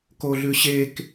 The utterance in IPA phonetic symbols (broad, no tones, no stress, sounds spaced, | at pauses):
k o ɮ ʉ ɕ e k